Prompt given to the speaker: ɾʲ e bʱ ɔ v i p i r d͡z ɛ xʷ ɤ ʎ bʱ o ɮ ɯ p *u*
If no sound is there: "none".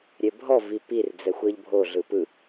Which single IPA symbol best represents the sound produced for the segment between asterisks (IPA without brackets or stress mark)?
ɯ